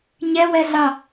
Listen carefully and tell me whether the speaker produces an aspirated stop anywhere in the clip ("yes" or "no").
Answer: no